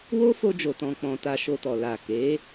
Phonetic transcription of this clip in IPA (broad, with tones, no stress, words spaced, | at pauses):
wo˦fo˧d͡ʒo˨ tɔ̃˧k͡pɔ̃˧ ta˧ʃo˧tɔ˨ la˨ke˨˦